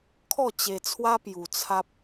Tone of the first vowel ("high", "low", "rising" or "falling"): falling